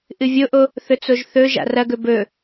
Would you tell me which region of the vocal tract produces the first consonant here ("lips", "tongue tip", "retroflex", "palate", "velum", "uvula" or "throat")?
throat